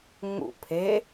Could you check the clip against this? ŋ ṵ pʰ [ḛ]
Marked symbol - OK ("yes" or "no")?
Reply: no